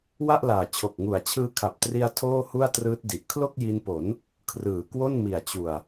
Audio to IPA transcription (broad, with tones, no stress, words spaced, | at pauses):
wa˥˩ʔlaː˨˩ t͡ɕʰo˨˩k̚ŋu˨˩a̯t͡ɕʰɯː˦˥ kʰa˨˩p̚tri˧a̯ tʰoː˥˩ hu˥˩a̯trɯː˦˥t̚di˨˩ʔ kʰlo˥˩k̚ji˧npo˩˦n | kʰrɯː˨˩kwo˥˩nmi˨˩a̯ t͡ɕu˨˩a̯